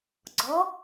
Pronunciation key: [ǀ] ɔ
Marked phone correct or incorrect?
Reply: incorrect